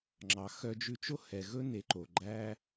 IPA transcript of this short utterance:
ŋ͡ǁɑ˨ xœ˧d͡ʒʉ˧t͡ʃo˦ hɛ˨ ɣɵ˦ne˨˦ǃo˨ ɡ͡ǃæ˧

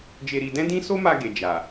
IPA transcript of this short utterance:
d͡ʒe˧ɾi˧ dɛ̃˦dĩ˦ so˦ma˧ ɡe˨d͡ʒa˨

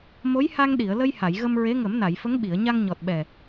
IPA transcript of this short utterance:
mo˧˥jha˧ŋ ɗi˨˩˨ə̯lə˧j ha˨˩˨jɣə˧m ɹe˧˥ŋə˨˩˦mna˨˩˨jfə˧˥ŋ ɓi˨˩˨ə̯ɲa˧ŋɲɔ˨˩t̚ɓɛ˨˩

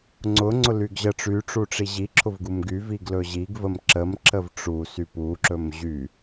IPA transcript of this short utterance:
ŋ͡ǀʊ ŋ͡ǀʊlyɡʑə ʈ͡ʂyʈ͡ʂuʈ͡ʂi ʑiǁʰʊvɡum ɡyviɡ lɵʑiɡ vəmǁəm ǁəvʈ͡ʂusy puǁɵm ʑy

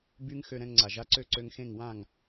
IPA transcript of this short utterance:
by˦ŋxø˧ ɾɛ̃˧ŋŋ͡ǀa˨ʒa˧ǀø˦˨ ǀø˧ŋxẽ˦˨ŋ wã˦˨ŋ

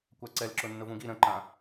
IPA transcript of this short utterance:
kʷaǀɛlǁʊ nːʊvũɡi ɾə̃ǃã

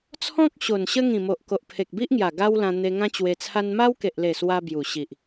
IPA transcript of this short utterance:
t͡sʰɔ̃˦k̚ ɕo˨˩nɕə˦ŋĩ˨˩mo˨ʔ ko˨ʔpʰe˨k̚bi˦ʔŋja˨˩ ɡa˦wlã˧ n̪e˧ŋã˦t͡ɕwe˧ t͡sʰa˧nma˦wke˨ʔle˨˩ swa˦bju˨˩ ɕi˨ʔ

